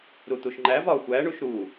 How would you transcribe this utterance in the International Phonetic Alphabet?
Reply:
ɾ u t̪ u ʃ ŋ͡ǃ æ v ɒ xʷ æ ɳ u ʃ ɾ u

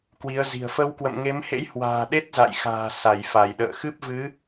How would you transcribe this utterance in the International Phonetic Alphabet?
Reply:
k w i˨˦ ə̯ z i̤˨˩ ə̯ f ə˧ w k w ə̰˧˨ m ŋ e˨˦ m h ḛ˧˥ j h w a̤ː˨˩ ɗ e˦˥ t̚ z a̰˧˨ j x a̤ː˨˩ s a˧˩ j f a˧˩ j ɗ ə̰ː˧˨ x ɨ˦˥ p̚ v ɨ˨˦

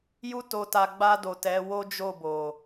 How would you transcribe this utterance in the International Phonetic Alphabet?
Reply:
j u˦ t o˧ t a˧ ɡ͡b a˧ d o˨ t ɛ˨˦ w o˦ d͡ʒ o˦˨ b o˨

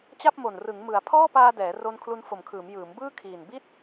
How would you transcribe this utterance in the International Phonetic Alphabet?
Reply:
t͡ɕ a˥˩ p̚ m o˨˩ n r ɯ˩˦ ŋ m ɯ˩˦ a̯ pʰ ɔː˥˩ p aː˧ d ɛː˩˦ r o˧ n kʰ l u˧ n f o˨˩ m kʰ ɯː˩˦ m j ɯː˩˦ m b ɯː˥˩ kʰ iː˨˩ n b i˥˩ t̚

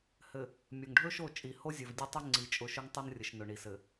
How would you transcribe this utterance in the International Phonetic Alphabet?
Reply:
h ɘ˨ | mʲ ɵ˨ ŋ ɖʱ ɵ˦ ʃ o˦˨ t͡ʃʼ i˨ h o˦ zʲ ɵ˨ v dʲ ɘ˦ tˤ ɵ˦ ŋ͡ǀ i˨ t͡ʃʼ ʊ˨˦ ʃ ɵ˦ ŋ tˤ o˦ n rʲ ɘ˨ ʃ n ʊ˨ ɳ i˨ s ɘ˨

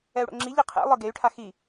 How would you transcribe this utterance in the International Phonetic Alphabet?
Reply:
ɛ u̯ ɽ o̰ ŋ͡ǁ i ʎ i qʰ ḛ lˠ ɯ ɡ e y̯ ʈʰ a x i

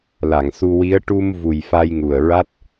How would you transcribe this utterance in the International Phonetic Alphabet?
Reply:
l a˨˩˨ ŋ s u˧ w i˧˥ ə̯ ʈ u˧ m v u˨˩ j f a˧ j ŋ u˨˩ ə̯ ɹ a˦˥ t̚

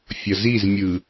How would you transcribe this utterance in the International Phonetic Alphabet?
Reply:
fʲ ʌ z i z mʲ ɯ

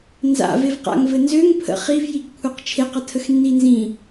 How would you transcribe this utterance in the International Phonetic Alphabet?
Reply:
n z a̰ v e v q a̰ ŋ v ɘ n z ø ŋ pʰ ə̰ χ i v j i ɡ kʷʰ e q t͡ʃʰ e q ə tʰ ə x nː i n z ĩ

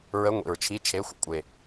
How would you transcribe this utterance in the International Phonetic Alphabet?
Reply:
ɹ ə˧˥˧ ŋʷ ḭ˨˩ ɹ t͡ʃʰ i˧˥˧ t͡ʃʰ e˧˥˧ xʷ ə̰˧˥˧ kʷʼ e˨˩

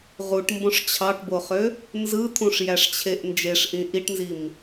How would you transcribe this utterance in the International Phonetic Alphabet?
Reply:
ʁ u ʈ m b õ ʂ t͡ɕʰ ɑ ʈ b o χ ø | n z ɯ t̪ʰ ũ ʂ j æ ʂ t͡ɕʰ e ʔ n d͡ʒ e ʂ ʔ ĩ ʔ i ʈ n z i m

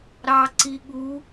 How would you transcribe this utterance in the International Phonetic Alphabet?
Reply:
ɾ ɑ ǀ i ɠ u

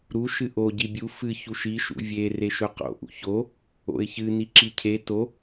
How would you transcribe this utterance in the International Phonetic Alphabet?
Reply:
ɾ u ʃ ɨ ʔ o ɟ i bʲ u f ɨ ç u ʃ i ʃ ṵ vʲ e r e ʃ ɵ q o̰ ʔ ṵ ç o | o̰ ɪ̯ ç ɨ n i ǁ i cʰ e t o

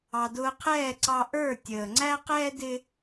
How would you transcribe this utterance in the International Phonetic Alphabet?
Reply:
ɑ˨ d ʊː˧ qʰ ɛː˦˨ ǀ ɑ˧ ʔ ə˞˦˨ tʲ əː˨ ŋ͡ǀ æ˦ q ɛː˦ d ɪ˦

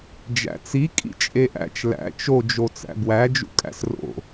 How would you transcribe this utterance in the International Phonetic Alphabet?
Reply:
d͡ʒ æ̰ t͡s i kʼ ḭ t͡ʃʼ e ʔ æ̰ t͡ʃ l æ̰ t͡ʃ o d͡ʒ o t͡s æ̰ b w æ d͡ʒ ṵ kʼ æ̰ s r o̰

